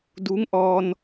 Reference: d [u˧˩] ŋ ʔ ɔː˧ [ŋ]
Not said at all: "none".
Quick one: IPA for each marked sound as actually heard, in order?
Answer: u˧˥, n

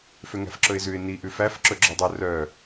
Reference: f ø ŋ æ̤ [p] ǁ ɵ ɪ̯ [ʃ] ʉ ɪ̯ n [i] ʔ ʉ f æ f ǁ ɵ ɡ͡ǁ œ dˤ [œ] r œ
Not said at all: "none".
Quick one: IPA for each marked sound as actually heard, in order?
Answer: f, z, i, ɵ

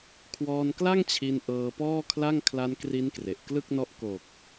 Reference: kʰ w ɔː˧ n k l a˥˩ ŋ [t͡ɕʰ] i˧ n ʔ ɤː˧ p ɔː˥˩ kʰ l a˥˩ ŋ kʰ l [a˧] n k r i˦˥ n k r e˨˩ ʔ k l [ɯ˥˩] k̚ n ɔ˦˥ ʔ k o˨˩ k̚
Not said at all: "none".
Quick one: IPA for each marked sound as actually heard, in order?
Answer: t͡ɕʰ, a˧, ɯ˥˩

